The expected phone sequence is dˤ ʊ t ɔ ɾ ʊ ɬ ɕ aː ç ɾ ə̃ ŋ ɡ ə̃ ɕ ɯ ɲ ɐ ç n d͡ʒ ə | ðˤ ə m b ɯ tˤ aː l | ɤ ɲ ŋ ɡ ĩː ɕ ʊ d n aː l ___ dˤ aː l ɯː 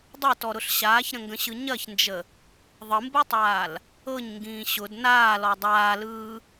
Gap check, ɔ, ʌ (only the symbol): ɔ